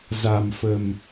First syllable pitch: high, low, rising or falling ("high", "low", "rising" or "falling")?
low